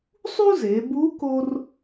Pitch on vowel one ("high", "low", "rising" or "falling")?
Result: high